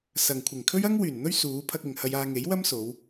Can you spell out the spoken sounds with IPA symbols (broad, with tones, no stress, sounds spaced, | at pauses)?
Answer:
s ɐ˨ ŋ kʷʰ ɪ˨˩ ŋ kʰ ɵ˥ ɥ ɐ˥ ŋ w yː˨˩ n n̪ ɵ˥ ɥ s uː˨˧ pʰ ɐ˧ k̚ ɪ˨ ŋ h ɐ˧ j aː˧ ŋ e˨˥ j w ɐ˥ m s o˨˧ w